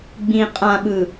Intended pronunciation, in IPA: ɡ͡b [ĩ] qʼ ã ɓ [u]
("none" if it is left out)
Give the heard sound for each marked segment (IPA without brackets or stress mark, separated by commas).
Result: ĩ, ɯ